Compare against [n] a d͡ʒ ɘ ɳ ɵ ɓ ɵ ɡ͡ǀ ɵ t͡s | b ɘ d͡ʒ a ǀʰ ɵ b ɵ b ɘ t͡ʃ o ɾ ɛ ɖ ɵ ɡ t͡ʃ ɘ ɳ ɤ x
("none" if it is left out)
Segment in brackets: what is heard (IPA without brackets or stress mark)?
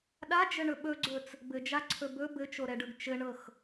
ɗ